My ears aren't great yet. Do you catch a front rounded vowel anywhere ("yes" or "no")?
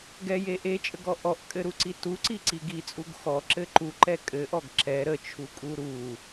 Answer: no